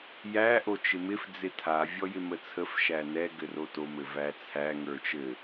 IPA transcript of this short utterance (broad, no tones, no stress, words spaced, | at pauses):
jæ ʔot͡ʃɪmɪf d͡zɪtʰa vʲɔjɪmət͡sʰəf ʃænɛ ɡɘroto mɘvæt͡sʰæ ŋə˞t͡ʃɘ